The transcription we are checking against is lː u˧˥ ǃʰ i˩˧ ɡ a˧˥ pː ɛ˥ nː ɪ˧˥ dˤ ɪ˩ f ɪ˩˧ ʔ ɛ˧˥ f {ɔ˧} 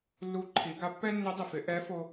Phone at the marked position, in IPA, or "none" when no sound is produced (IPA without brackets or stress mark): o˧